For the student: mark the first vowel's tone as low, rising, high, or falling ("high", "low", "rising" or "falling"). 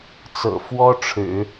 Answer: low